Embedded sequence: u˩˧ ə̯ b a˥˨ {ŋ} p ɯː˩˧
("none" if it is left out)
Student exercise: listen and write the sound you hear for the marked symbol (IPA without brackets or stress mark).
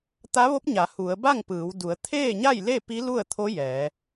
ŋ